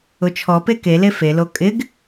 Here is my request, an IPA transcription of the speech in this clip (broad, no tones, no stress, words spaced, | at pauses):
ʊt͡ʃʰɔpe kele felo kʼɪɡ